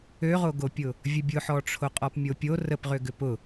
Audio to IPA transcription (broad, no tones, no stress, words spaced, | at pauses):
øʁoɡopʲʊ | vʲəbʲʊħɔʈ͡ʂʰo qʼɔpmʲopʲo rəpʁʏ ɡʏpʊ